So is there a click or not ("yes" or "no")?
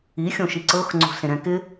yes